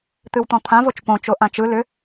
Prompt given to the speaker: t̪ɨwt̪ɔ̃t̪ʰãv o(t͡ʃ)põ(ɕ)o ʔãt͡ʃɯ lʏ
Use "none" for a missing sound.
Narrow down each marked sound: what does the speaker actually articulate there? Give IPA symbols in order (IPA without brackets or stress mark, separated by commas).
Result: t͡ʃ, t͡ʃ